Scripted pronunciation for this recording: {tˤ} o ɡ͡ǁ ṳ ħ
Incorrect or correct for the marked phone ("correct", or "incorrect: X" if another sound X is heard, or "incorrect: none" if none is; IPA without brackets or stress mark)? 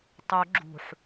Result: correct